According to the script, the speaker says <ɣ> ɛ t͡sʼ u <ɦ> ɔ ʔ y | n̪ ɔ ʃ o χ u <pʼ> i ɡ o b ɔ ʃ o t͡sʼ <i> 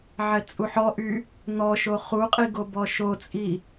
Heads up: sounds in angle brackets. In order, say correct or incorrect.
incorrect: ʕ, incorrect: ħ, incorrect: qʼ, correct

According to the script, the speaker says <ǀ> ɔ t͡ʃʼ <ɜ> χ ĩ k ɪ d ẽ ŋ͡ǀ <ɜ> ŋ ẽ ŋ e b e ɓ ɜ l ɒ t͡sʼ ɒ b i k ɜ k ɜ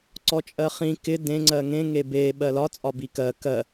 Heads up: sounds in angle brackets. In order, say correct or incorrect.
correct, correct, correct

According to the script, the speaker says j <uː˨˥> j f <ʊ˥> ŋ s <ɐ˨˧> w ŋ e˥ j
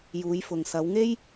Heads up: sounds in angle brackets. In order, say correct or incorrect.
incorrect: uː˨˧, incorrect: ʊ˨, correct

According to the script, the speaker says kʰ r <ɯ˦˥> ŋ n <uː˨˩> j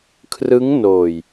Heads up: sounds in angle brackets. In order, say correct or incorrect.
correct, incorrect: oː˨˩

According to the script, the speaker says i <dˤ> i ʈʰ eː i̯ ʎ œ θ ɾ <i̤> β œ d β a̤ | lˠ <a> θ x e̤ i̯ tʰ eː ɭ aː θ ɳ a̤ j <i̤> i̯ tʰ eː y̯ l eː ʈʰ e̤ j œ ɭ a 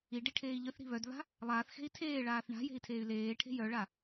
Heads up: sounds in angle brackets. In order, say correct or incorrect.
incorrect: ɖ, correct, incorrect: aː, incorrect: e̤

